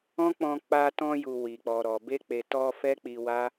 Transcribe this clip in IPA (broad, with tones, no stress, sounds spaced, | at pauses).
ɔ̃˦ k͡p ɔ̃˧ k͡p a˧ t ɔ̃˧ j u˨ w i˨ k͡p ɔ˨ ɾ ɔ˨ b e˧ k͡p e˨ t ɔ˧ f ɛ˦ k͡p i˧ w a˦